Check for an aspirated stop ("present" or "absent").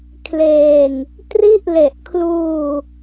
present